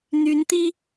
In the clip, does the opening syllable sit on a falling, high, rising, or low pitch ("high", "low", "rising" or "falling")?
rising